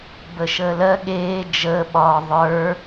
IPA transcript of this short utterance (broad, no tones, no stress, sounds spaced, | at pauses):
b ə ʃ əː l ɜ ɠ eː d͡ʒ əː ɓ ɒː ðˤ ə˞